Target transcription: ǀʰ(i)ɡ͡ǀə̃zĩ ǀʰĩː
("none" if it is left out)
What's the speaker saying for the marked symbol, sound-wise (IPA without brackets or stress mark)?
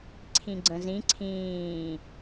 ĩ